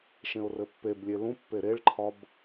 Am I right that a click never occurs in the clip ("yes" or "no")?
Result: no